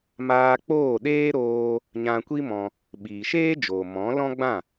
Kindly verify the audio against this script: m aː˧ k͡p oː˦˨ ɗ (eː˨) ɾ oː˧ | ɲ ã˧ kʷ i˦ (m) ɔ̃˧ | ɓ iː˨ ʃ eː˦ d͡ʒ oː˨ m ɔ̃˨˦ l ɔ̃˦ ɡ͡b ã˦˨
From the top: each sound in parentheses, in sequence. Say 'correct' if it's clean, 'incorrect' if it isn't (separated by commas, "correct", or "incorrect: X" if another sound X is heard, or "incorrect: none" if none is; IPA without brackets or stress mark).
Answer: incorrect: eː˦, correct